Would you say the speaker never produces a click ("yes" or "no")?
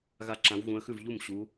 no